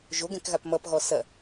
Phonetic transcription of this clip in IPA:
ʒoɡɛ̃kɣap mʌpɣɔ sɐ

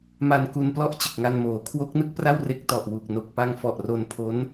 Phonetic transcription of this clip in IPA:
ma˧nku˧nplɔ˥˩ʔ t͡ɕɯ˨˩k̚ŋa˧nmoː˩˦ kʰwo˦˥k̚nɯ˥˩k̚pra˥˩w re˦˥k̚tɔ˨˩ʔ wu˨˩k̚no˨˩k̚pa˧ŋfɔ˨˩ʔ ro˧npʰo˦˥n

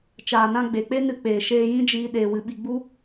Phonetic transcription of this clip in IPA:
t͡ʃaː˨nã˧ ɡ͡be˨k͡pe˦nɨ˧k͡peː˨ ʃeː˧ jĩ˦d͡ʒiː˧ ɗeː˨wɨ˨ɓi˨ ɡ͡bu˦

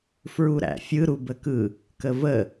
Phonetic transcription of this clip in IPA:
fɹuɾæ̰fʲɯɾub əkɯ | kəvə

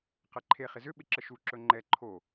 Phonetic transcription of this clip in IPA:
qɛǃʰe χɪzʏ ɓɪǁəʃu ǁɵŋ͡ǃɛ ǃʰo

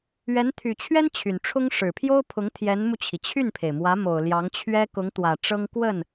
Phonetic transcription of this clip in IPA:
ɥɛ˧˥nt̪ʰy˨˩t͡ɕʰɥɛ˥n t͡ɕʰy˨˩n ʈ͡ʂʰʊ˥ŋ ʂɻ̩˨˩pʰjo˥ʊ̯pʰʊ˧˥ŋ t̪ʰjɛ˧˥nmu˧t͡ɕʰi˩ t͡ɕʰy˥˩npʰe˩ɪ̯mwä˧˥ mo˨˩ʊ̯ljɑ˧˥ŋt͡ɕʰɥɛ˥ kʊ˧˥ŋt̪wä˨˩ ʈ͡ʂɤ˥ŋ kwə˥˩n

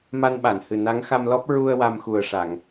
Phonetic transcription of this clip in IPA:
ma˧nɓa˨˩˨nhɨ˨˩ na˧˥ŋxa˧mlɔ˦˥p̚ ɹu˧ə̯ wa˧mxu˨˩ə̯ ʂa˨˩˨ŋ

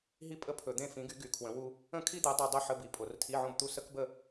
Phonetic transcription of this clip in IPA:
ɦi˥pʼə˥ pʰɵ˧˩˧d̪ẽ˥˧ fĩ˨˥ɡy˨˥ ɡy˧˩˧ kʰwə̃˨˥wu˥ | ə̃˥˧kʰi˥d̪e˨˥dˤe˧ dˤɵ˥˧ħə˧˥˧ bi˨˥pʼo˧˩˧r tʰi˧˥˧ʕõ˥˧bt̪u˥˧ sə˥kbə˥˧

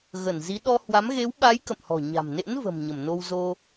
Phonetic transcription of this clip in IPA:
ɣə˧˩nzi˨˦ ɗɔ˧hwa˨˦m ɣe˨˦wɓa˨˦j kə̰˧˨mhɔ̤˨˩ɲa̤˨˩mnḛ˧˥n və̤˨˩mɲə˧˩mno˧w zo˧

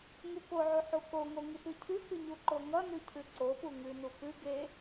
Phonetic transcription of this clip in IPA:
ŋukoʕu ħukoŋo ŋɨpɨcʰʉkɨ ɲuǃoŋʌnʉ cʰɨǀopu ŋʉnu pɨ ɡe

